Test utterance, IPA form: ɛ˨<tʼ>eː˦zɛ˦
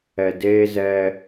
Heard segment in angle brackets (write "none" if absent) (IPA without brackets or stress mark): d